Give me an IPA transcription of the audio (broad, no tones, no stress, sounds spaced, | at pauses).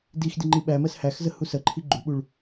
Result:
d i x d i ŋ͡ǃ i ɓ æ m ɜ s h æ x z ə h u s ɜ ǃʰ i ɡ͡ǃ u ɓ u ɭ